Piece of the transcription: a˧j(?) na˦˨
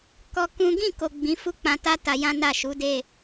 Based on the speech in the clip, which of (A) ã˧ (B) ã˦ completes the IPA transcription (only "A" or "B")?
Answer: B